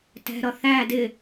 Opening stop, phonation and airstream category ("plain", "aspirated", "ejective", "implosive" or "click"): plain